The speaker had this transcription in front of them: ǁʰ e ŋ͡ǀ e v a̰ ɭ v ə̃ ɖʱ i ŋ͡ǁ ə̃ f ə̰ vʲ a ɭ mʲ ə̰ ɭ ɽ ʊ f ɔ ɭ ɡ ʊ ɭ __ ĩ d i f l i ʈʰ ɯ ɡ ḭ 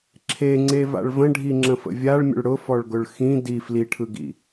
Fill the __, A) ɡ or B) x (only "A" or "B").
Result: B